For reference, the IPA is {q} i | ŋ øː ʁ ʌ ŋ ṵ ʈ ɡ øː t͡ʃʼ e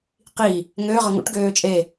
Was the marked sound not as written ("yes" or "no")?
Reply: no